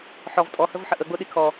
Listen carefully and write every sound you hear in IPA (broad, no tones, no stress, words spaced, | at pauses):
ħɔv tʼɔhəvħə ʔəɡ͡bʊɗi kʰɔ